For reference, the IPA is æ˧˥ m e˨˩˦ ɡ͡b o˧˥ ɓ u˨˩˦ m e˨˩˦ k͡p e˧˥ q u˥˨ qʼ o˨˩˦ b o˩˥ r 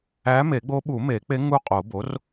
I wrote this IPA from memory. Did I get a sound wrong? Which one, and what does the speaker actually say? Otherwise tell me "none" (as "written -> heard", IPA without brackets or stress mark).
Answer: q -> ŋ